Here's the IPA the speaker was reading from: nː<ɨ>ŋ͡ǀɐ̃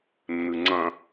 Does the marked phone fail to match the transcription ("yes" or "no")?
no